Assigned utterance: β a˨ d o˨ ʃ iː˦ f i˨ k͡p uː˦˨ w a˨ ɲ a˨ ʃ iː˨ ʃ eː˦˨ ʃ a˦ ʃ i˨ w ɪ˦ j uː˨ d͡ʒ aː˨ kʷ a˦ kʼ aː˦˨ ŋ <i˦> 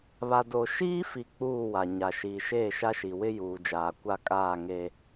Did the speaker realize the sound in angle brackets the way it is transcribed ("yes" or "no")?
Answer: no